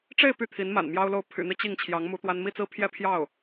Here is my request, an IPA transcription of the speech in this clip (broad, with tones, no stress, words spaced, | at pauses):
ʈ͡ʂe˥˧ɪ̯ py˥˩t̪ʰi˧˥nma̰˨˩n mjɑ˥ʊ̯lo˥˩ʊ̯ pʰy̰˨˩n̪i˦ t͡ɕi˥˩ŋ t͡ɕʰjɑ˧˥ŋ mu˧˥ t̪wa˥n mi˥˧t͡sɹ̩˥˧pʰjɛ˥˧ pʰjɑ˥˩ʊ̯